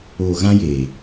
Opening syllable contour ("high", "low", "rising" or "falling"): low